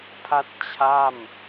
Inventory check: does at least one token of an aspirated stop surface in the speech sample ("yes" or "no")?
yes